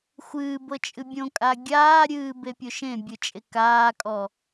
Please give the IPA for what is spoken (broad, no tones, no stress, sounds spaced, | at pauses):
xʷ ɨː b ɤ t͡ʃʼ ɨ bʲ õ kʼ a ɡʲ aː ɾʲ ɨː b e pʲ o ʃ ẽ bʲ ɯ t͡ʃʼ e k aː kʼ ɔ